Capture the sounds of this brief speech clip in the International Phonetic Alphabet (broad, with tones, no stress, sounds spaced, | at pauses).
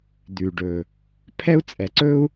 d̪ ʉ˩ ɖ ɵ˩ | pʰ ɛ˥ u̯ t͡sʼ ɛ˩ ǀ ɵ˥ u̯